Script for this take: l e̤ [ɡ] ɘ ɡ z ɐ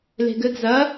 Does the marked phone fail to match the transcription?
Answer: no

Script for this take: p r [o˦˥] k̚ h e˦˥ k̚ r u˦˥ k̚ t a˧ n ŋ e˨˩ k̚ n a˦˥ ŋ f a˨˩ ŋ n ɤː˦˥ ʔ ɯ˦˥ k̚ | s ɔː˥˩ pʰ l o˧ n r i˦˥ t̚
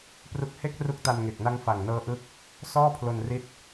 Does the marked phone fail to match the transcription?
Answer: yes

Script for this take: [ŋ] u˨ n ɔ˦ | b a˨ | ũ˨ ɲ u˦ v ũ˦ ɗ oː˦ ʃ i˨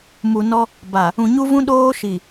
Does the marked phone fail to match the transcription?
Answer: yes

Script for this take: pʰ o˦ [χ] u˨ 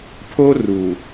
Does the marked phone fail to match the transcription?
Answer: yes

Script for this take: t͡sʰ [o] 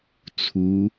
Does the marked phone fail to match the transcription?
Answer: yes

